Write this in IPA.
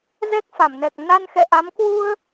zɛ˦˥k̚fa˧˩mnɛ˨˩k̚ na˧nxɛ̰˧˨ʔa˨˦m kwu˧ə̯

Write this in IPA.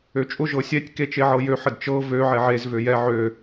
øt͡ʃʼʊ ʒɤsʲɛtʲ ket͡ʃeʕɤjø ħədt͡ʃɤ vø ʕɛʕez vøjɛ ʕø

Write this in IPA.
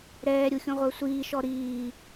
ɾɛːɾʲu xʲũʁʷə˞sʷiːʃɔ ɾiː

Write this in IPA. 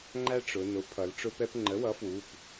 ŋ͡ǃæ˦ ʈ͡ʂʊ˩˧ nʊ˩˥ pʰʌ˩˧lʈ͡ʂʊ˦pɛ˦p ŋ͡ǃə˩˥wʌ˩˥ fwu˩˧˩p

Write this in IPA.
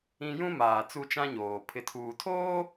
ĩ˦ jũ˦maː˨ t͡su˦t͡ʃã˦ɲoː˨ pʰɪ˨tʰuː˨ tʰoː˦

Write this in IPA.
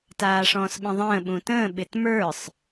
taːʂɔ̃ːsɓə̃ðˤə̃ː ɓũtə̃ː ɓɪtmə˞sˤ

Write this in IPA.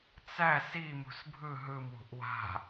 t͡sæ simṳs bʱɯ ɦɯmwṳʔ wa̤

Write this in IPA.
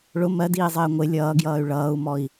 ɭʊ mɜdiːzˤɪː ŋʷɪ lʲʌːɡjʌːy̯ ɭʌːu̯mɔi̯

